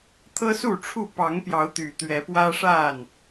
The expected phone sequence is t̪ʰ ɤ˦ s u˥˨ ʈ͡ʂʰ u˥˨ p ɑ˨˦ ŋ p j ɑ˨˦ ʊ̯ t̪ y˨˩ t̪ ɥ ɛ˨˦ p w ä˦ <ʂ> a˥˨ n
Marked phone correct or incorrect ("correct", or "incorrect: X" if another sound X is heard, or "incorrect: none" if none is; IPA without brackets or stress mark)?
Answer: correct